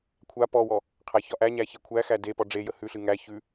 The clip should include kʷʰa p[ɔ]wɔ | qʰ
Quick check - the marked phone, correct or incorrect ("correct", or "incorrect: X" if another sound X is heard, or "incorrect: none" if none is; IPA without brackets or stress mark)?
correct